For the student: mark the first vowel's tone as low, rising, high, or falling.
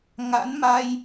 rising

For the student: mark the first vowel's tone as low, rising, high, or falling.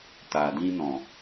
low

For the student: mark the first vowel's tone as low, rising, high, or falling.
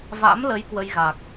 rising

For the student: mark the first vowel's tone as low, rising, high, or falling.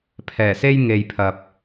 low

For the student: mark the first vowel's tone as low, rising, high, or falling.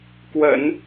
low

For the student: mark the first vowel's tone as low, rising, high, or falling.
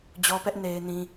high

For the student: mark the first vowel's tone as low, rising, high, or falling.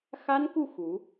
high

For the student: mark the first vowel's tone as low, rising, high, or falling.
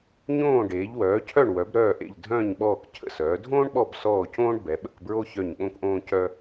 falling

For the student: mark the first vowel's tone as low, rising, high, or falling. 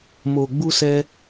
low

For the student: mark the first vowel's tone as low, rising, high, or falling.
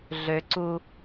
high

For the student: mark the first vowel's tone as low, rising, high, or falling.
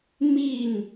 falling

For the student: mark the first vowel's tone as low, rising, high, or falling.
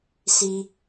high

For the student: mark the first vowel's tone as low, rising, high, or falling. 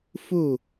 falling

